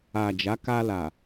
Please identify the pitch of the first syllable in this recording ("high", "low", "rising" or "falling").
low